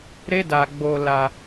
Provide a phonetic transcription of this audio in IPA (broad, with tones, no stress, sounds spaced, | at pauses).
ɾ e˦ d a˧ ɡ͡b o˧ l a˧